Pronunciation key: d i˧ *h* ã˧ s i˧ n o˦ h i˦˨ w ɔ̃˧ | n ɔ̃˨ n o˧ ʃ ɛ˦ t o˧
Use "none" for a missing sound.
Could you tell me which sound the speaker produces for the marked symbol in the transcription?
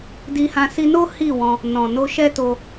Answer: h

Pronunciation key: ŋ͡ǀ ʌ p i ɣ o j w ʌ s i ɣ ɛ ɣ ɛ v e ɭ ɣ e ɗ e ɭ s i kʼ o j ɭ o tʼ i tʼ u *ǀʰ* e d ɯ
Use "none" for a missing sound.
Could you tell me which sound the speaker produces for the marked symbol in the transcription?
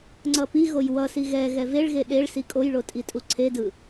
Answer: ǀʰ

